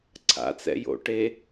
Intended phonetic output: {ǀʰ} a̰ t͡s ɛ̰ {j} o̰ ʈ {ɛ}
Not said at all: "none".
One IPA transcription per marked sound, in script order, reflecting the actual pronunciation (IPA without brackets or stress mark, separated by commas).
ǀʰ, j, e